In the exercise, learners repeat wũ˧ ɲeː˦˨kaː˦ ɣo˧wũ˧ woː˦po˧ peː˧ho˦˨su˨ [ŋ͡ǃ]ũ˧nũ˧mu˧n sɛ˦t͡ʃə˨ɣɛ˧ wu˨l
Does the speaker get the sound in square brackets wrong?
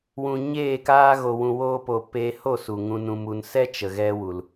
yes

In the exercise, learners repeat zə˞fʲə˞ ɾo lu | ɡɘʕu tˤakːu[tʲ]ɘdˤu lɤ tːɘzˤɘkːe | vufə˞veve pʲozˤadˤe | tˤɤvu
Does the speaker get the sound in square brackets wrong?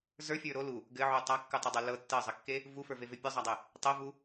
yes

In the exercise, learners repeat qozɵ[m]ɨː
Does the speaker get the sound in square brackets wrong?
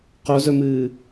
no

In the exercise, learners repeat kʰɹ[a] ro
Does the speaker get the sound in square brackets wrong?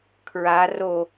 no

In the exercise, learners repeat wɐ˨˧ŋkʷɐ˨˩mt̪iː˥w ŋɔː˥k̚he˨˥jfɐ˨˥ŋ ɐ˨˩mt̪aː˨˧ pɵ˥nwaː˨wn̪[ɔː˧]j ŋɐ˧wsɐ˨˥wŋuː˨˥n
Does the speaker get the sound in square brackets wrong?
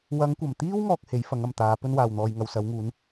no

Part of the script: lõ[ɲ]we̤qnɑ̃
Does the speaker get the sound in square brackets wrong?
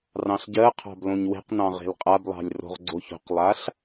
no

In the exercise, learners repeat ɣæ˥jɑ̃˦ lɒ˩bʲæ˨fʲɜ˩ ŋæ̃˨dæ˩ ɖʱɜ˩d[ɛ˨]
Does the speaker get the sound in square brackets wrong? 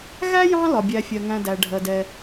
no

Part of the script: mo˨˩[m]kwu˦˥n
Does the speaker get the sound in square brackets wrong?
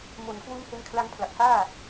yes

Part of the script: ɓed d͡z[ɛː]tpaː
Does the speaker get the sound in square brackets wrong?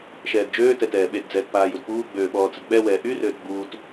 no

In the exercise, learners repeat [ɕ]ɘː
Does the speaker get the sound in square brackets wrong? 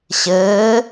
no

